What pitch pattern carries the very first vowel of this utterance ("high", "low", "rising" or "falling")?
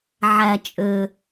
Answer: low